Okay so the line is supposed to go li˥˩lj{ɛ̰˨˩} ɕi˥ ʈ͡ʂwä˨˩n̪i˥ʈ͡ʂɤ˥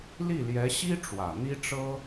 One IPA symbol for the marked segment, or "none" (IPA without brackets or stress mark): ɛ˧˥